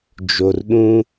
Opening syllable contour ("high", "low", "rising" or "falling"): low